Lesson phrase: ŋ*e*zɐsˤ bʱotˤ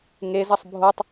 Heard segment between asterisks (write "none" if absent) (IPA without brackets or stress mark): e